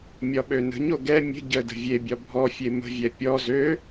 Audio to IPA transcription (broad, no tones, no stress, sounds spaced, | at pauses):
mʲ ɒ ɓ ø n ə̤ ɲ o ɡ ɛ mʲ ə̤ ɟ ə d ə̤ vʲ e bʲ ɒ bʱ ɔ fʲ e m ə̤ vʲ ɛ pʲ ɔ z ø